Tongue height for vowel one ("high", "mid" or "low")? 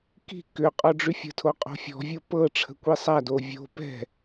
high